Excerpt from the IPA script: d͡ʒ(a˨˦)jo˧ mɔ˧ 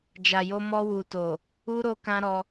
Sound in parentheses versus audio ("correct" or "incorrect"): incorrect